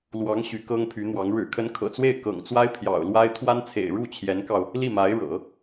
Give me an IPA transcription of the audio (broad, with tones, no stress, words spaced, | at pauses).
lwɑ˧˥ŋ ɕy˧˥kɤ˥ŋpʰy˧˥n̪wɑ˧˥ŋ ɻɻ̩˨˩kʰə˧˥nkʰɤ̰˨˩t͡swe˥˩ɪ̯ kɤ̰˨˩ŋt͡swa˥ɪ̯ pʰjɑ̰˨˩ʊ̯lwa˥ɪ̯ t̪ʰwa˥nt͡sʰḛ˨˩ɪ̯ ɻu˥˩t͡ɕʰjɛ˧˥nkɑ˧ʊ̯ | li˥˩ma˧˥ɪ̯ɻɤ̰˨˩˦